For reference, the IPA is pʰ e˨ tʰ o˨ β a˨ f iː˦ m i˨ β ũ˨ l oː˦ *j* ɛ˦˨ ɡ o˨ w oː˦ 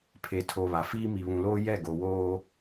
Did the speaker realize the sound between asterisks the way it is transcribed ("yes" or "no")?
yes